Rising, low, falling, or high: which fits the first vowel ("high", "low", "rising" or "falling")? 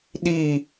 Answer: falling